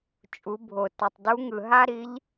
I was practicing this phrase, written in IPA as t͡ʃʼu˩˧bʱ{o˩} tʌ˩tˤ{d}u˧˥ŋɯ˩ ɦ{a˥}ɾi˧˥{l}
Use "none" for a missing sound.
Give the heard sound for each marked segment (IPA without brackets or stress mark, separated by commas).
o˩, d, a˥, ʎ